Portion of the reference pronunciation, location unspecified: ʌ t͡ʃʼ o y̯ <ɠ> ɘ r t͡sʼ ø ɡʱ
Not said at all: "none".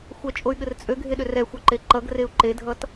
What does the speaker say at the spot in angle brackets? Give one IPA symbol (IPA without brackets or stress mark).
ɠ